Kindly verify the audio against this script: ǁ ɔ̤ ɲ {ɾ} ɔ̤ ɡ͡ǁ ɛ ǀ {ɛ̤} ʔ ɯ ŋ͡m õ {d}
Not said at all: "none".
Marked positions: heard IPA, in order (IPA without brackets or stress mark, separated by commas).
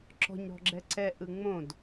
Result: ɾ, ɛ, d